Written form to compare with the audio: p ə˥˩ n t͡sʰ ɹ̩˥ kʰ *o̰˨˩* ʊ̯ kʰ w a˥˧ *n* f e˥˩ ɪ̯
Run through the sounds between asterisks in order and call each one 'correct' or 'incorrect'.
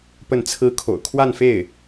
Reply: correct, correct

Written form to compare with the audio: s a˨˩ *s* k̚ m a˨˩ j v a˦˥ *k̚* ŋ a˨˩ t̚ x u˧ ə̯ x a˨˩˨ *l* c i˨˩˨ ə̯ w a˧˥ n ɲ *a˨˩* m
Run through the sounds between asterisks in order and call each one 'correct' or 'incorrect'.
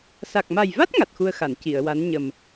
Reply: incorrect: none, incorrect: t̚, incorrect: n, incorrect: ə˨˩

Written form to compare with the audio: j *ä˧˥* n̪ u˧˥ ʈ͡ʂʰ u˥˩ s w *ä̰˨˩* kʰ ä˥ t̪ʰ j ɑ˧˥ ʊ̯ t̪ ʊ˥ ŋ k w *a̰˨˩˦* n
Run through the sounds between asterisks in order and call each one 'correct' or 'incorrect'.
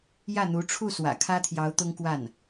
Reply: incorrect: ä˥˩, correct, incorrect: a˥˩

